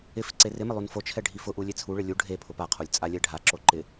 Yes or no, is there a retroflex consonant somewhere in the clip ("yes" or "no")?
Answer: yes